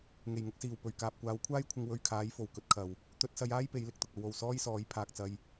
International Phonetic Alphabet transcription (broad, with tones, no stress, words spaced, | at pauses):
ŋe˨˩jŋʊ˧k̚siː˨˩w pɵ˨˩ɥ kaː˨p̚kʷaː˨˥wkʷʰaː˥jkʷʰɪ˧ŋ wɵ˧ɥkʰaː˨˥j fo˨˩wkɵ˧t̚kʰɐ˨w | t̪ɵ˧t̚sɐ˧jaː˥j pe˨˥jlɪ˨k̚t̪ʊ˨k̚ ɐ˨˧wo˨˩w sɔː˥jsɔː˨˥j pʰaː˨k̚t͡sɐ˧j